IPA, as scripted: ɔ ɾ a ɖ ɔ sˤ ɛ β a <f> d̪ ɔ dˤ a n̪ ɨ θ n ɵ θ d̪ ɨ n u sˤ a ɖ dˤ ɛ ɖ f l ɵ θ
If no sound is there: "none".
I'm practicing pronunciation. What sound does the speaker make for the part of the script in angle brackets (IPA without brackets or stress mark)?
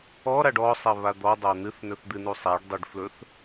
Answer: none